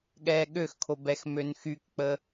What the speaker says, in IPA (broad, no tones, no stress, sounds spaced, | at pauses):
ɠ ɛː ɠ ø x kʰ o b ɛ x m ø n x y k k͡p ə